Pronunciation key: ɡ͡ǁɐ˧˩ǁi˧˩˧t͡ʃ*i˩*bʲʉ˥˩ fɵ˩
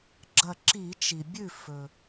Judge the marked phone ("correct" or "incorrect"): correct